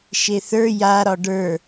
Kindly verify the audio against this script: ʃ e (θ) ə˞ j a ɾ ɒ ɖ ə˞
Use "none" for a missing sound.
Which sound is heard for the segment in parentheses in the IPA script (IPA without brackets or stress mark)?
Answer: θ